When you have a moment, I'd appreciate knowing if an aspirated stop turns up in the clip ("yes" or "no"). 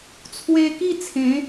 yes